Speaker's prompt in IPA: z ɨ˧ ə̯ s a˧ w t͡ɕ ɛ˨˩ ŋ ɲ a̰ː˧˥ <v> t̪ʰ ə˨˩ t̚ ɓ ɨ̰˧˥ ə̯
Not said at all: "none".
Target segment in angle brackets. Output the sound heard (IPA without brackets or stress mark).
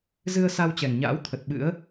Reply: w